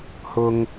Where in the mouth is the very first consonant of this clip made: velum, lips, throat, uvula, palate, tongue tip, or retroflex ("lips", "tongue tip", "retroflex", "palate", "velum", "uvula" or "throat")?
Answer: throat